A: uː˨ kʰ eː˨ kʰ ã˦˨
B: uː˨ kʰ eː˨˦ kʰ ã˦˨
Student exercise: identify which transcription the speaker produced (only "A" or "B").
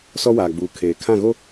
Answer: A